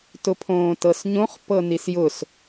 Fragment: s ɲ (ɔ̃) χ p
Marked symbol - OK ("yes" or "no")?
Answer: no